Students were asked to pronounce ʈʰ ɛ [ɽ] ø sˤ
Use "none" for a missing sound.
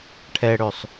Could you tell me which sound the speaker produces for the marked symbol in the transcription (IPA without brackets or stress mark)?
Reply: ɽ